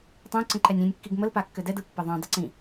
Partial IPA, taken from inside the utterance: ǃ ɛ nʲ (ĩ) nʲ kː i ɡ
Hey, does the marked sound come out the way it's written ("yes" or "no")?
yes